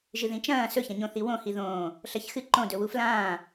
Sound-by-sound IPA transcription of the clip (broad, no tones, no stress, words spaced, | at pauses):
ʒɨðĩt͡ʃɐ̃ː sɵçɐ̃ɲõθi wõhi ðõː | ɬɐçxɨ ǃõdɵwu flãː